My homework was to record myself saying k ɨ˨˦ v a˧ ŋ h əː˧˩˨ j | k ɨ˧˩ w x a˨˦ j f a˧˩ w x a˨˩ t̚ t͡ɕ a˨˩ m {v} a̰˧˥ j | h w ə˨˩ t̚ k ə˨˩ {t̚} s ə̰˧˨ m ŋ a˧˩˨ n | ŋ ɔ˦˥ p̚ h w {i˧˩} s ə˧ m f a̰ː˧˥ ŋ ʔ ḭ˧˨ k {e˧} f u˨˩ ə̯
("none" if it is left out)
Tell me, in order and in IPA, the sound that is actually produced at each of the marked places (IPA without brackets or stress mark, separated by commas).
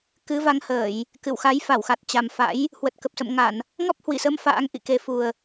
f, p̚, i˧˩, e˨˩